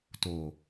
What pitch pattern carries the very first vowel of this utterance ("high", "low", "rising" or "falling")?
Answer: low